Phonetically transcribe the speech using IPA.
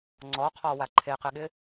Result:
ŋ͡ǀ ɔ qʰ ɔ w a ǃʰ e q ɪ ɠ ɪ

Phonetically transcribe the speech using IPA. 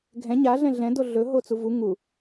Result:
ɡʱ ɛ̃ ɲ a ɮ ɛ̃ ɮ ɛ̃ d o ɮ ɵ ɦ o t͡s u v u ŋ u

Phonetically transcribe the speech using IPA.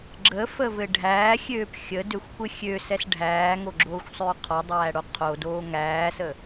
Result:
ɡ͡ǁ ə f ə v ɘ ɖʱ æː xʲ øː p xʲ ə d ø xʷ kʷ ɘ xʲ ø s ɛ s ɖʱ æː ŋ o ɡ͡ǁ oː xʷ sˤ øː qʰ ɔ dˤ æː ɽ o qʰ o d oː ŋ æː s ə

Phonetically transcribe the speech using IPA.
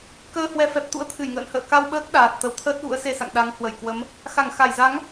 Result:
k əː˧ h w ɛ˨˦ f ɛ˨˩ p̚ t̪ ṵ˧˥ ə̯ t̪ʰ ɨ˧˩ j ŋ ə̰ː˧˨ n h ə̰ː˧˨ k a˧ w ɓ əː˦˥ k̚ ɗ aː˨˩ t̚ t̪ ə˨˦ w t̪ʰ əː˦˥ t̚ ɣ ṵ˧˥ ə̯ s e˧ s a̰˧˨ ŋ ɗ a˨˦ ŋ h w ə˧˩ j k w ə˨˦ m | x a˧˩ ŋ x a˧˩ j z a˨˦ ŋ

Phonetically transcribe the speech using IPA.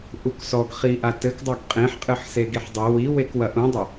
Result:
ʔ u k s ɔ ɡ χ i ʔ a t ɘ k dˤ ɐ ɡ qʼ ẽ ħ qʼ ɨ ħ s e ɡ i ħ dˤ ɘ w i w e k w ɐ ʔ ũ dˤ e

